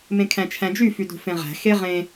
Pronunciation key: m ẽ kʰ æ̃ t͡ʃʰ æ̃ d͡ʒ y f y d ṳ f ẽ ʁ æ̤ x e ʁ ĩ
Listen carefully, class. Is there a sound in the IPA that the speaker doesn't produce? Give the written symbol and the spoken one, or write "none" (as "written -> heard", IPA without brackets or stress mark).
ĩ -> ẽ